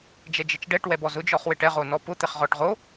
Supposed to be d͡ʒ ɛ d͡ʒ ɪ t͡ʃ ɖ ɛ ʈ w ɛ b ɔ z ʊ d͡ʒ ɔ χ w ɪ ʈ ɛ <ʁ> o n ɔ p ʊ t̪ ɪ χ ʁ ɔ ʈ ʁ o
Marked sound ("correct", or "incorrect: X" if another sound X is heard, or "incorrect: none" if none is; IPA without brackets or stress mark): correct